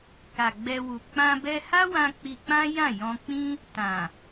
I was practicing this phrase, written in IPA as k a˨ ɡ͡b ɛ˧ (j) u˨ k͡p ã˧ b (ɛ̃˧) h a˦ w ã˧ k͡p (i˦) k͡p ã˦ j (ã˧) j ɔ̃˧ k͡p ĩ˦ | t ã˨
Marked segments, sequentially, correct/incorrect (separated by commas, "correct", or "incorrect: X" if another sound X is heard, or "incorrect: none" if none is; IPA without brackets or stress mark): incorrect: w, incorrect: ɛ˧, incorrect: i˧, incorrect: ã˦˨